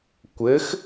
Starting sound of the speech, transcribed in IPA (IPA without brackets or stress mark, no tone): kʷ